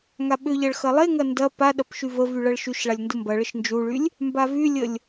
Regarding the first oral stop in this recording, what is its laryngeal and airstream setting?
implosive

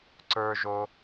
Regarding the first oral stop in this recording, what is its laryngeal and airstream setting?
click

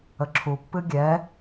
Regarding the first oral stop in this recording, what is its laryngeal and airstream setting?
click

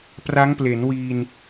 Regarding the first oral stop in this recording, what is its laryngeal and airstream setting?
plain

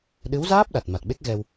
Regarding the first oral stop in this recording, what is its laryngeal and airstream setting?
implosive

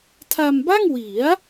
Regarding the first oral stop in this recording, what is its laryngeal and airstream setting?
aspirated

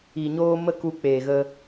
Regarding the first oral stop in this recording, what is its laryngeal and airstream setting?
plain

